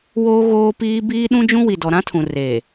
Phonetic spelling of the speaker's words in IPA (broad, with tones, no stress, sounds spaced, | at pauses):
w oː˦ ɣ oː˦ p iː˦ b iː˦ ɗ ũ˦ d͡ʒ ũ˦ w i˨ d ɔ˨ ɾ ã˦ tʰ ũ˨ r e˨